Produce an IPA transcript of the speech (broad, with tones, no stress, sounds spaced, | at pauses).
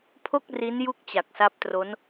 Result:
pʰ o˥˩ k̚ r i˦˥ n j u˥˩ k̚ t͡ɕ a˨˩ k̚ s a˦˥ p̚ t r o˦˥ n